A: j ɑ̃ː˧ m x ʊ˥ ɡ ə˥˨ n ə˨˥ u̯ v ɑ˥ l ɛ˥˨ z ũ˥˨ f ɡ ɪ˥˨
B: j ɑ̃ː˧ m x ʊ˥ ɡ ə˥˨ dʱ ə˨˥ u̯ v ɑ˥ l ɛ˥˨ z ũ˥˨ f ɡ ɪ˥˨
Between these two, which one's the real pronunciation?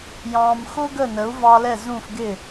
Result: A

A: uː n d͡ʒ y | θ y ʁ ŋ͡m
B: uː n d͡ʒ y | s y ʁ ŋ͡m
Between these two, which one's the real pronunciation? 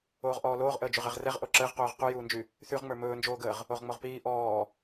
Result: A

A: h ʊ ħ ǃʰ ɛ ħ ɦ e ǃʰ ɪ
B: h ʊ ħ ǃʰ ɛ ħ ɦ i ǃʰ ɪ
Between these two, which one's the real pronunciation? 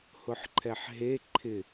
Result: A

